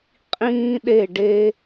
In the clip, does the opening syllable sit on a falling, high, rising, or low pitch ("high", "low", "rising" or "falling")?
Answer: high